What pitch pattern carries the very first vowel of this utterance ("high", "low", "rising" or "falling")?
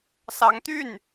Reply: rising